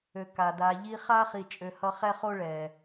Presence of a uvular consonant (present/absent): present